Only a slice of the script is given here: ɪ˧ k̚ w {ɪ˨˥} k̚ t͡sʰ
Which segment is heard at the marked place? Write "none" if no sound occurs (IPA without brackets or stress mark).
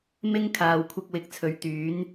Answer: ɪ˨˥